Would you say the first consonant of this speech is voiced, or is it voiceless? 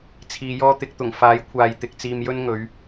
voiceless